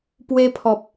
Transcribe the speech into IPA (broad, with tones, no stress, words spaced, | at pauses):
pwe˦ pʰɔ˨p̚